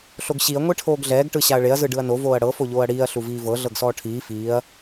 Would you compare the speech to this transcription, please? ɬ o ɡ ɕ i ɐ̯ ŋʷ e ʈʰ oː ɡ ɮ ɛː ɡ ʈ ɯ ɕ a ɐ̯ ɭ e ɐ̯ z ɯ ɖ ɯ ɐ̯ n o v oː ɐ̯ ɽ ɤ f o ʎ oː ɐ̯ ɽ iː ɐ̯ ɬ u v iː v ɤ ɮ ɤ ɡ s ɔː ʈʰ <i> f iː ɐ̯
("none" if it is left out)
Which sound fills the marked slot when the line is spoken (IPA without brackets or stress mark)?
iː